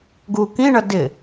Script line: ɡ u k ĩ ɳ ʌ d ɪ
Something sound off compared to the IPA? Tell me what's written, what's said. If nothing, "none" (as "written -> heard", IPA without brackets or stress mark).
none